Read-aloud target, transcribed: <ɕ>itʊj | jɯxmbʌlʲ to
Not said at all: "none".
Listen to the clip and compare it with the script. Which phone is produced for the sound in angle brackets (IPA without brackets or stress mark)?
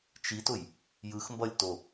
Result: t͡ʃ